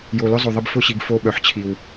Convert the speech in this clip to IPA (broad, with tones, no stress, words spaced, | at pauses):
jo˨lʏ˦ zˤo˨ðˤə˦b fʊ˦˨ɕi˨ɡ fo˦ɓœ˨ħt͡ɕʰi˨w